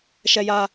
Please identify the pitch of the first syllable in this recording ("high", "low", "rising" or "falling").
high